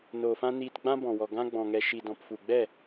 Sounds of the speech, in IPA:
n oː˨ f ã˦ n iː˧ t ɡ͡b ã˦ b ɔ̃˨ w ɔ˨ ɡ ã˦ ɡ͡b ɔ̃˨ ŋ ɛ˨ ʃ i˨ d ɔ̃˨ p f u˨ ɡ͡b ɛ˦˨

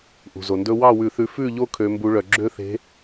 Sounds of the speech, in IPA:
ʔ ṳ˩ z o˩ n d ɵ˦ w ɑ˥˨ w ʉ˧˩˧ θ ʉ˨˦ f ʉ˥˨ ʎ o˦ kʰ ø˨˦ m b u˨˦ ɭ œ˩ ɡ͡ǁ ø˦ θ e̤˨˦

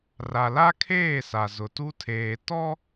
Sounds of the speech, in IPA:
r a˨ l a˦ kʰ eː˦˨ s a˨ z ʊ˨ t u˦ tʰ eː˨ t ɔ˦

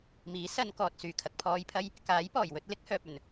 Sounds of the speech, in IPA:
m iː˨˥ s ɐ˧ n k ɔː˨ t̚ s yː˨˩ kʰ ɐ˨ k̚ pʰ ɔː˧ j pʰ ɐ˥ j | k aː˨˥ j p ɔː˨˩ j w ɵ˧ t̚ l ɪ˨˥ k̚ h œː˨ p̚ ɵ˨˩ n

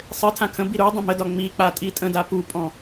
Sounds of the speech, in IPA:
sˤ ɘ tʰ ã kʰ ə̃ b i ɾ u dˤ ə̃ m ə d ɒ ŋ͡m i k͡p a tʼ i tʼ ə̃ d a p u pʼ ɔ̃

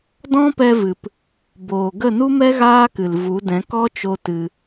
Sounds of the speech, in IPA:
d ɔ̃˦ p ɛ˧ v ɨ˨ p | b oː˨ ɡ ə˦˨ n u˦ m ɛ˦ ɣ aː˦ k ɨ˨ l v u˨˦ d ɛ̃˨˦ k ɔ˦ t͡ʃ o˧ t ɨ˧

